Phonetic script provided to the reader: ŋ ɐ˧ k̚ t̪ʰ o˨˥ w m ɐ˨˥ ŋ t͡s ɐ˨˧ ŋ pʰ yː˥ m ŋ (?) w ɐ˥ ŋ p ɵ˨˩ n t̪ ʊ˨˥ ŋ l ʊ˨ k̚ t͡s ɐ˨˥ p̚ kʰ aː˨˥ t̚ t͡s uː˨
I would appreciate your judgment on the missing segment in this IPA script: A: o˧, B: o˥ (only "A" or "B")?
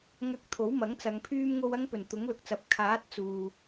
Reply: A